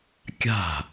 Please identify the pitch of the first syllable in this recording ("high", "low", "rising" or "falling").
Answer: falling